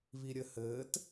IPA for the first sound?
β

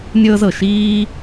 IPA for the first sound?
nʲ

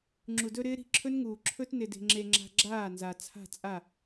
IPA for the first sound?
ŋ͡ǁ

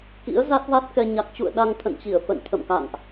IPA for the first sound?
k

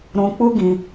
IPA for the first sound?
ɾ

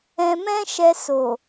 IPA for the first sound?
ɛ̃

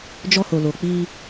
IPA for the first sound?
d͡ʒ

